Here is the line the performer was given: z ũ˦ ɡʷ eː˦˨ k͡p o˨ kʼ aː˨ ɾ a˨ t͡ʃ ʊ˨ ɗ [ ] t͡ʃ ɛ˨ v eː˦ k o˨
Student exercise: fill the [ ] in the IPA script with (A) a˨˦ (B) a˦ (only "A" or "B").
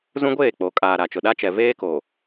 B